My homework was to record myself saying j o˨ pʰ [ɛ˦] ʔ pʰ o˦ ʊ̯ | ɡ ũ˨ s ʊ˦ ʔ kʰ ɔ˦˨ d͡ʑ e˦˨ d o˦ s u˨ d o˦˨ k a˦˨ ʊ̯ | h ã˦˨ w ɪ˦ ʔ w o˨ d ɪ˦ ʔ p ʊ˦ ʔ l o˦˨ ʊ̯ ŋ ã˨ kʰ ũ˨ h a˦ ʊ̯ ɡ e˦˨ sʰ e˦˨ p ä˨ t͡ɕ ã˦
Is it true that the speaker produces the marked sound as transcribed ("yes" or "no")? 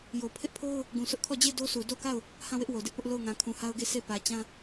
no